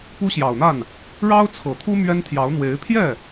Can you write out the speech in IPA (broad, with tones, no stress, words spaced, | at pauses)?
pu˥ɕjɑ˨˩ʊ̯n̪a˥˩n | ɻɑ˥ʊ̯t͡sʰɤ˨˩t̪ʰu˥ mɥɛ˥nt̪ʰjɑ˧˥ʊ̯n̪we˧˥ɪ̯ pʰjɛ˥˩